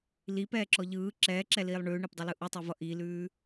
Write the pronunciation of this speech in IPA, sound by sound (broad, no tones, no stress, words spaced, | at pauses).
lipɛː ǁɔʎɯː ǁɛːǁɛliːlˠ ɳʉːɳɛpdˤɛlɯ ʔutˤuvʌ ʔilʉː